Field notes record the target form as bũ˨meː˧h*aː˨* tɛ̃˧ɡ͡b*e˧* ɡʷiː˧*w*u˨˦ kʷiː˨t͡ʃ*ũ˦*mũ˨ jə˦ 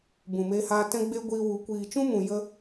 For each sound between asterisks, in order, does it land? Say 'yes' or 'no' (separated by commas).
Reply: no, yes, yes, yes